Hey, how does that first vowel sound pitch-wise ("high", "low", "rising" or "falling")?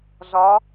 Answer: rising